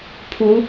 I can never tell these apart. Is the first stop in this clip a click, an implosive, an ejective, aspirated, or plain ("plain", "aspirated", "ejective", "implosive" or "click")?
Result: aspirated